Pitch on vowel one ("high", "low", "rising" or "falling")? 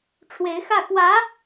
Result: rising